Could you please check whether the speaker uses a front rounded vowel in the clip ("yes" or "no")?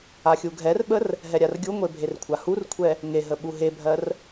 no